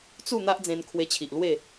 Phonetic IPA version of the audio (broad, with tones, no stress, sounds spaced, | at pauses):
t͡s u˥˧ n̪ a˦ ʔ d͡z ẽ˧ n kʰ w e˧ t͡ɕʰ i˨ ʔ l w e˥˧